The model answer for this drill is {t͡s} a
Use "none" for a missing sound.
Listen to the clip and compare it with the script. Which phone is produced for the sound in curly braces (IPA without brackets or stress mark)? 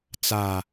t͡s